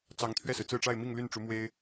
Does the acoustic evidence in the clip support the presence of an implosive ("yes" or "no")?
no